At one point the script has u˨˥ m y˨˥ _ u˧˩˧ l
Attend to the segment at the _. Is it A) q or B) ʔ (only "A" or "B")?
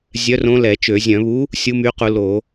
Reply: A